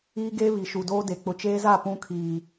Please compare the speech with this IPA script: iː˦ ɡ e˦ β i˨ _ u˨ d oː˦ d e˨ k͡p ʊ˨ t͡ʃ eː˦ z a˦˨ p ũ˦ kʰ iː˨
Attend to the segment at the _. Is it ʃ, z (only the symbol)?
ʃ